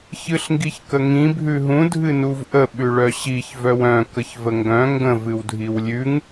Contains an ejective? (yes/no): no